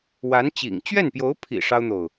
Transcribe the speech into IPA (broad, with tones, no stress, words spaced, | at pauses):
wa˧˥nt͡ɕḭ˨˩ŋ t͡ɕɥɛ˥˩npjo˧˥ʊ̯ pʰḭ˨˩ ʂɑ˥ʊ̯n̪o˨ʊ̯